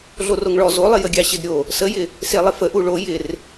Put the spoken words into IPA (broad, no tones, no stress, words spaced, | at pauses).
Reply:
ɮoroŋɭɔ zolˠɪ jəɡʲɑɕɪdɾʲo | səjɪ | selˠɪfə ʔuɭo jɪr